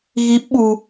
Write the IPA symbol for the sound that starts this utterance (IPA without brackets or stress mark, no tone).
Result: ɣ